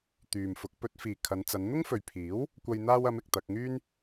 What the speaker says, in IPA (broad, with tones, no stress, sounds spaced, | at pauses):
t̪ yː˨ m f ʊ˨˥ k̚ p ɵ˨˥ t̚ f iː˨ kʰ ɐ˨˧ n t͡s ɐ˨˧ n n̪ ʊ˥ ŋ f ɵ˨ ɥ pʰ iː˨˥ w | kʷ ɐ˧ j n̪ aː˧ w ɐ˨˧ m ɪ˨ k̚ t̪ ɐ˧ k̚ ŋ yː˥ n